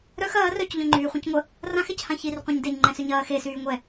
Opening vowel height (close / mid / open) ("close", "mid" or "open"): mid